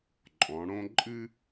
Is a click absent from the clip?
no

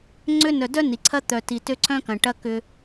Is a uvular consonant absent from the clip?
yes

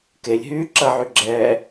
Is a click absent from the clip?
no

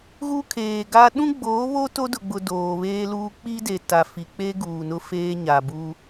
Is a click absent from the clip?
yes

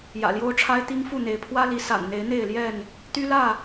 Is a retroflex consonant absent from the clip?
no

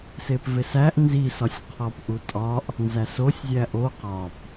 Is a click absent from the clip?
yes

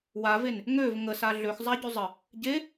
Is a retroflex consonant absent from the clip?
yes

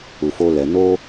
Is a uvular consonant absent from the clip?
yes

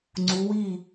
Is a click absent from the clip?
no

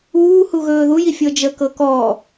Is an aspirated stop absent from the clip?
yes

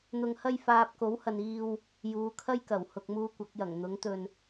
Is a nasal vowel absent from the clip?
yes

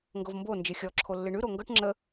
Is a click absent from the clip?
no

